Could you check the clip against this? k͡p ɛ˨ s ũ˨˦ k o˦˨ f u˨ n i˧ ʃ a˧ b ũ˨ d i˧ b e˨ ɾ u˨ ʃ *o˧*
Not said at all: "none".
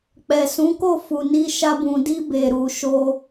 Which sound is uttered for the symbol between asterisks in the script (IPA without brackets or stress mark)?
o˧